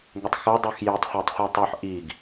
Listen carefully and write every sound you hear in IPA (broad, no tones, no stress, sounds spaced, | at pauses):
ŋ ʏ tˤ x ə˞ dˤ ʉ x j i tˤ χʷ æ tˤ χʷ i tˤ ʉ ħ ʔ i ɡ